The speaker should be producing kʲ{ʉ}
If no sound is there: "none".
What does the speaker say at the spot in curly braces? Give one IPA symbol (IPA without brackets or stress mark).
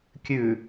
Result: ʉ